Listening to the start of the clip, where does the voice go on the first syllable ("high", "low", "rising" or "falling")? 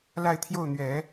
falling